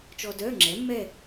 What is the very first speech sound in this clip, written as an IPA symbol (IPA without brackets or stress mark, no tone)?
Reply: t͡ʃ